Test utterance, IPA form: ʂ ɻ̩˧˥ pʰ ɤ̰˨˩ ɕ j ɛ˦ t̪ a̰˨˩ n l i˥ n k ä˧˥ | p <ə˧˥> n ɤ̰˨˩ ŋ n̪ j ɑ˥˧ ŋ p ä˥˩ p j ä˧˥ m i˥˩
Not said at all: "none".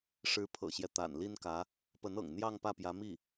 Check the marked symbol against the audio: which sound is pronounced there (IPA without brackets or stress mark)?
ə˧˥